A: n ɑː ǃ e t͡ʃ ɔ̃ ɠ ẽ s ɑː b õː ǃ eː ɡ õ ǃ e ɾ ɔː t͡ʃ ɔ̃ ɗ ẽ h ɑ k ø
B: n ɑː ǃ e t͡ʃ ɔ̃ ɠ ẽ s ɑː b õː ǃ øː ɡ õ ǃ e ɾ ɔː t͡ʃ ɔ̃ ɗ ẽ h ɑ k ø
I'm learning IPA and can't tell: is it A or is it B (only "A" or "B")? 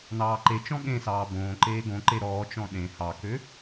A